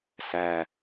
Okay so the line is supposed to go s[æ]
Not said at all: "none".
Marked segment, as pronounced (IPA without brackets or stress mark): æ